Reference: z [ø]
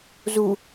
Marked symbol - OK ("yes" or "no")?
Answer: no